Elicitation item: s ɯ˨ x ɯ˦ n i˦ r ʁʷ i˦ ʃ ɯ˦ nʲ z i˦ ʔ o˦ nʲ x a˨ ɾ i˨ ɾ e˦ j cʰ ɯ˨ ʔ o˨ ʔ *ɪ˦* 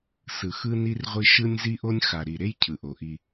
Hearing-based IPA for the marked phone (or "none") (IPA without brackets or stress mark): i˦